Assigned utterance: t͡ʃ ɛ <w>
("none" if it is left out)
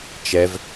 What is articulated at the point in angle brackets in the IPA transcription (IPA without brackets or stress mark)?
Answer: v